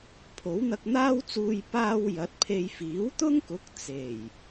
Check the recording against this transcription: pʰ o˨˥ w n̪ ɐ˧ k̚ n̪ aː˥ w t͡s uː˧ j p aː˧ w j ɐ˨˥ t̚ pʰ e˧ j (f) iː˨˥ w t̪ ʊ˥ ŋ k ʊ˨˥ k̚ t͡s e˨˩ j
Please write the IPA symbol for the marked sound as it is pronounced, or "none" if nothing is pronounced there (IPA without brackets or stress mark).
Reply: f